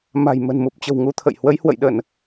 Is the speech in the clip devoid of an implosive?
no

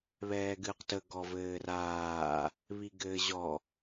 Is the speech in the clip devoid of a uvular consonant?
no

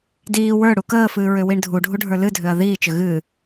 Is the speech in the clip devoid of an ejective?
yes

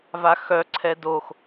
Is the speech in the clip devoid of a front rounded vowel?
no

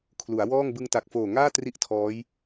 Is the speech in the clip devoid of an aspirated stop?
no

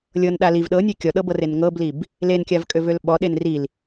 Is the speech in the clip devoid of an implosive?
no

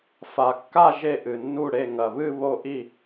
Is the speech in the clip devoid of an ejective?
yes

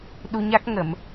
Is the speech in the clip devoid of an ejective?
yes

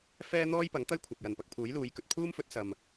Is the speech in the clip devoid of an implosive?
yes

